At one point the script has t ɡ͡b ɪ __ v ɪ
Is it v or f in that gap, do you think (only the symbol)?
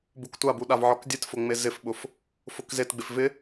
f